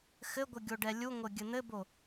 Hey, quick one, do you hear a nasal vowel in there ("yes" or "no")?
no